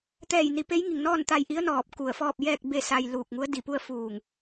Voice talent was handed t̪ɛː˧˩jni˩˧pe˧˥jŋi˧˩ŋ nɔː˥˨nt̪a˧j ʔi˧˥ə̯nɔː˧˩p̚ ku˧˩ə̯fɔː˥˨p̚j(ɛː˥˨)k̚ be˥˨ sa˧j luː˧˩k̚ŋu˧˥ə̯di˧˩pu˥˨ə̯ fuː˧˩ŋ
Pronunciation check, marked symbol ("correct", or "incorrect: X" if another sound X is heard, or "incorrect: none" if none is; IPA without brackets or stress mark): correct